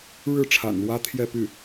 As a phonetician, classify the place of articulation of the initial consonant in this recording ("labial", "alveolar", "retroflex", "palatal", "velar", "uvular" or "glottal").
retroflex